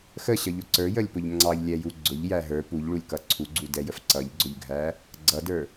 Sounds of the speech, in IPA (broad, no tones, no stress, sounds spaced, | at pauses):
x ə ɕ ʌ ʎ ʊ ǀ ə˞ j ə lʲ p ʊ ʎ ŋ͡ǀ ɑ ʎ lʲ ɛ j u ɡ͡ǀ ʊ ʎ j æ ɦ ə˞ p u ʎ ɭ u lʲ k ʌ ǀʰ u ɡ͡ǀ u d ɛ j ə f ǀ ʌ ʎ ɡ͡ǀ ʊ ʎ ɡʱ æ | ɡ͡ǀ ʌ d ə˞